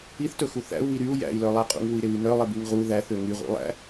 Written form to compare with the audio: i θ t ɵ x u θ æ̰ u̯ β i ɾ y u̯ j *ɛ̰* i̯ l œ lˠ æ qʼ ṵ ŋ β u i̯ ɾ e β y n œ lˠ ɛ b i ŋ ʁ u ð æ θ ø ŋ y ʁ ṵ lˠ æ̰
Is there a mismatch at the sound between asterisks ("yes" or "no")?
yes